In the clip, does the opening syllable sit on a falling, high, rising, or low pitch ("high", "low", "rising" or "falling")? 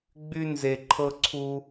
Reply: high